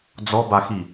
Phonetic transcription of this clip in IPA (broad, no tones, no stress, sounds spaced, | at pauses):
d͡z ɔ b a x i